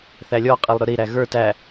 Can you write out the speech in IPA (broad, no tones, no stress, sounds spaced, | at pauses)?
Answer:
θ æ lʲ ɔ qʼ i lˠ ɾ ʊ ɾ i ɾ æ ɣ ə˞ t æ